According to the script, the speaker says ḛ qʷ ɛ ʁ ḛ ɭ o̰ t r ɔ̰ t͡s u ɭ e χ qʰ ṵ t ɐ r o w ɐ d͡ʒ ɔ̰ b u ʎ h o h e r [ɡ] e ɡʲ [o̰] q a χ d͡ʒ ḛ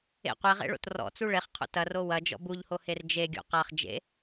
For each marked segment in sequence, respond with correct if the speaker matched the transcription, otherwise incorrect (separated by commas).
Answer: incorrect, correct